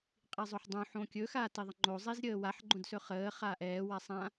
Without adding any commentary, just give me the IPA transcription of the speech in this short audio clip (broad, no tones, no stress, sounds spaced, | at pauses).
qʼ i zˤ ɵ ħ dˤ õ ħ õ kʲ ɵ x a t i ðˤ ə ŋ͡ǃ o zˤ i z ɾʲ əː w a ħ ɡ͡ǃ õ d s ɵ χ əː χ aː ʔ ɛː w a sˤ ã